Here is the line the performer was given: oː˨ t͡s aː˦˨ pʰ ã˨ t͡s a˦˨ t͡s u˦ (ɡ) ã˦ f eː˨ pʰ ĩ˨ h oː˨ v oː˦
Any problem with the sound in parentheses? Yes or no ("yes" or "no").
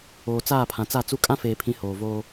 yes